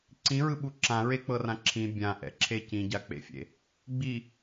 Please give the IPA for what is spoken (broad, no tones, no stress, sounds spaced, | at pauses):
ǀ ĩ ɹ ɯ ɓ u ǁ ã ɹ e k͡p ɤ r ã ǁʰ ĩ bʲ ã ʔ ɛ̰ ǁʰ e c ĩ ɟ a k͡p ḛ fʲ ḛ | ɡ͡b i